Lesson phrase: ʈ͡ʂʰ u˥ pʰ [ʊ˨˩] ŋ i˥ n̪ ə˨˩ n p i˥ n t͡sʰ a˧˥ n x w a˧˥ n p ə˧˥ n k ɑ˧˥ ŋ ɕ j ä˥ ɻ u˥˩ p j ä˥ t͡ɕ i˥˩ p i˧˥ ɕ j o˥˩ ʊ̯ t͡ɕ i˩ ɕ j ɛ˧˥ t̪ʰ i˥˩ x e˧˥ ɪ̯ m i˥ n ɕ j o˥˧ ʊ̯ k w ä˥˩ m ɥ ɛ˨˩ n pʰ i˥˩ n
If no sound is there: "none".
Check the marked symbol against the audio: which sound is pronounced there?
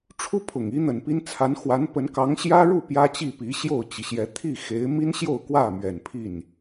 ʊ˨˩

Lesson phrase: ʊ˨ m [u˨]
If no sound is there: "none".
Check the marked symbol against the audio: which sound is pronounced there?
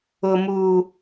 u˨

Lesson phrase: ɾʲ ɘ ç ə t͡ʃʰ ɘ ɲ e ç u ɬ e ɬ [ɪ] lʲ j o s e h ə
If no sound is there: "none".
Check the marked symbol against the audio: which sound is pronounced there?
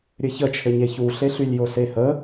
y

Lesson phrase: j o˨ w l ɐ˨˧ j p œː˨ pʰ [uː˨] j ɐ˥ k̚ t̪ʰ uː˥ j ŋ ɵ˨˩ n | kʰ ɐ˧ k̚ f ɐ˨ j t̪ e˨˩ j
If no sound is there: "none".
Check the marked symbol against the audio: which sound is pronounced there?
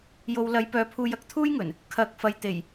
uː˧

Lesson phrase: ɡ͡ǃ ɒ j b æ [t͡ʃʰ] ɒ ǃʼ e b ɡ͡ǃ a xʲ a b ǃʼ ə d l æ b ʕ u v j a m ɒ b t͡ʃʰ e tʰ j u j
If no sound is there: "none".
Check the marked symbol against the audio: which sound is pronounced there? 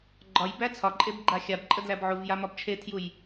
t͡sʰ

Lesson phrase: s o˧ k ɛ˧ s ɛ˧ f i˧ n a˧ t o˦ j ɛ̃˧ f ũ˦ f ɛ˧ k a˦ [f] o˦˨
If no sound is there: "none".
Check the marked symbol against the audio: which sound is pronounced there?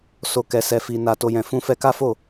f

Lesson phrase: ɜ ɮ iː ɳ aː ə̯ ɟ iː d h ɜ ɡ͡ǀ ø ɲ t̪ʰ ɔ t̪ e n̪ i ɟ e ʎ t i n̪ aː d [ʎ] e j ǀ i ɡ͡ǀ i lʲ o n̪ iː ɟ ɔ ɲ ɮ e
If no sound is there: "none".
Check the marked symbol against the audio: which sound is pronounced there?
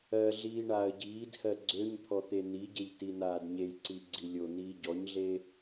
ɲ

